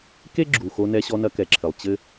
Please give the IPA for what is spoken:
k e˥ ɡ͡ǁ u˩ x o˧ n ɛ˧ ɕ ɔ˧ n ɐ˧ k ɛ˩ ǁʰ ɘ˩ lˠ t͡ɕ ɘ˧

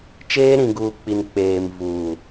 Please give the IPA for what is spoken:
t͡ʃ eː˦ ɾ ĩ˨ ɡ uː˨ k͡p i˨ n k͡p eː˨ m v uː˨

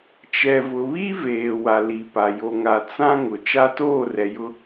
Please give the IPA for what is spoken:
t͡ʃ ɛ˨ v ʊ˨ β i˦ v eː˨ w a˨ l i˨ p a˨ j o˨ ŋ a˨ t͡s ã˦ ŋ ʊ˨ t͡ʃ a˦ t oː˦˨ r ɛ˨ j ʊ˦

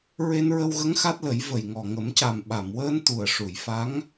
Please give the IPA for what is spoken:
ɹ e˧ n ɹ ə˧ w ɣ ə˧˥ ŋ x a˦˥ t̚ l ə˨˩˦ j v ə˨˩ j ŋ ɔ˨˩ ŋ ə˨˩˦ m c a˨˩ m ɓ a˨˩˨ m w əː˧ n t̪ u˨˩ ə̯ ʂ u˨˩˨ j f a˧˥ ŋ

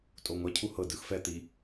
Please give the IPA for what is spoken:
tʼ o ŋʷ a cʰ u h ɤ d ɯ x f ɛ t̪ i

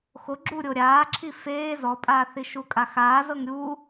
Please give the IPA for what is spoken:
x o ɡ͡ǁ u ɾʲ o ɾʲ aː ǁʰ i f eː z ɔ pʼ aː θ i ʃ u kʼ a x aː z ɤ ŋ ɾʲ u

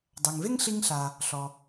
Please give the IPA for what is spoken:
dˤ ɜ˩ ŋ v e˥ ŋ ɬ i˦ ŋ ɬ a˩ | ɬ ɔ˩

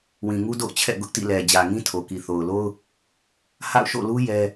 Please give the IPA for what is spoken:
w ĩ˨ ŋ u˦ d o̰˦˨ ʊ̯ t͡ɕʰ ɛ̰˦˨ ɡ ʊ˦ ʔ t ḭ˦˨ l ɛ˨ d͡ʑ ä˨ ŋ ĩ˦ tʰ o˨ k i˨ θ o˨ ʊ̯ l o˦ ʊ̯ | h a̰˦˨ ʊ̯ ʃ o̰˦˨ l u˦ j ɛ˦

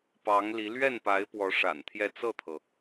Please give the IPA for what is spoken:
p ɑ˧˥ ŋ l i˧˥ l ɥ ɛ˥˩ n p a˧˥ ɪ̯ p w ɔ˧˥ ʂ a̰˨˩ n t̪ʰ j ɛ˥˧ t͡s ɤ˥˩ t̪ʰ ɤ˩

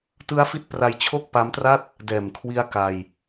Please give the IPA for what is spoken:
t ɯ˦˥ a̯ f i˦˥ t̚ p r a˧ j t͡ɕʰ o˥˩ k̚ p a˦˥ m t r a˥˩ t̚ | d ɛː˨˩ m kʰ w i˦˥ a̯ k a˧ j

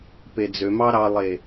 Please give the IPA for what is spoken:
p e d͡z ø m ɑ ɾ ɑ lˠ e

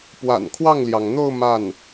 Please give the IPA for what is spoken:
p w a̰˨˩ n kʰ w ɑ˥˩ ŋ l j ɑ˩ ŋ n̪ o˥˧ ʊ̯ m a˥˩ n

